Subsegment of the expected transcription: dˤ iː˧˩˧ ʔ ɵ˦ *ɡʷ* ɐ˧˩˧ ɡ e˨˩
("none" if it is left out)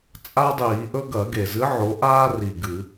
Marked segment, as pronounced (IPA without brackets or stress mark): ɡ